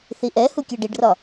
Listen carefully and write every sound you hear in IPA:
θiʔɛhu kʲɜɖiɖrɒ

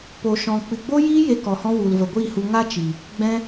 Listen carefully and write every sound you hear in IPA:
po˨ʃɔ̃˨ k͡pɨ˨ɡ͡bo˦jiː˦ je˧kɔ˨hɔ̃˧ wu˨lvə˨ɡʷiː˦˨hu˧ ŋa˦t͡ʃi˨ | ɡ͡bɛ̃˧

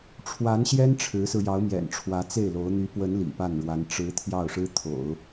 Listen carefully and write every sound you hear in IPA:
ʈ͡ʂʰwa˧˥nɕjɛ˥n ʈ͡ʂʰɻ̩˧˥sɹ̩˧ jɑ˧˥ʊ̯mjɛ̰˨˩nʈ͡ʂʰwä˧˥ t͡se˥˩ɪ̯lo˧˥ʊ̯ n̪y˧˥pwə˧˥n lḭ˨˩pa˥˩nɻwa˧˥n ʈ͡ʂɻ̩˧˥ t̪ʰjɑ˥˩ʊ̯ʂɻ̩˥t̪ʰo̰˨˩˦ʊ̯

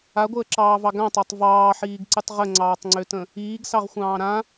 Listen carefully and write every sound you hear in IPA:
aɡʷəːǁɑːvɑ ɡãtˤatˤ vɑːħiːɡǀɨtˤ ʁəŋ͡ǀɑːtˤŋ͡ǀøtə̃ | iːɡsɑʁxʷɑ̃ː ɾã

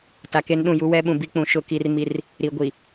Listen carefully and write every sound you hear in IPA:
ta˨ke˦nɗũ˦˨ ju˦wɛ˦ ɓũ˨bi˦k͡pũ˨ ʃʊ˦˨ki˦r mi˦r | ɾi˨ɡʷi˨

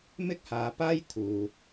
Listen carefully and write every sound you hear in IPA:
mɪ˥k̚haː˨˧paː˥j t̪ʰuː˨

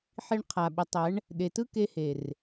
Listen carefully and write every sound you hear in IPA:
ħi˧ɳqʰa˨ɓə˨˦tˤɛ˨˦ɳ | ɗe˨tɯ˦ ke˧he˨r

